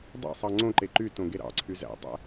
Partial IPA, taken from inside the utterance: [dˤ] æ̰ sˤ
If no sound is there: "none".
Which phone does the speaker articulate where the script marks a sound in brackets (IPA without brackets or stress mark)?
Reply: dˤ